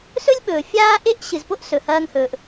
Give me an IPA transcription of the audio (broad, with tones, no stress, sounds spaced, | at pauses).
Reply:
s ɵ˦ lʲ ɓ ɵː˨ fʲ aː˦ ʔ e˦ ʔ ɕ ɨ˨ z p o˦ ʔ s ɵ˨ h ɐː˧ ŋ h ɵː˨ ʔ